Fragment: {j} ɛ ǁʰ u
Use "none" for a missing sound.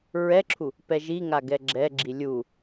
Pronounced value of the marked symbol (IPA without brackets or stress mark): ɹ